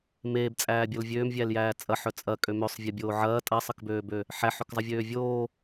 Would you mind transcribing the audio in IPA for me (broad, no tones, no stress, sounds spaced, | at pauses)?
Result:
m eː b t͡sʼ æː bʲ ɐ l vʲ øː m vʲ æ l j æː t͡sʼ ɐ ħ œ t͡sʼ ɐ kʼ ø m ø sˤ vʲ ɐ bʲ oː ʕ ɐː tʼ ɐ sˤ ə k b øː b ø | ħ æ ħ œ k zˤ ə vʲ øː vʲ oː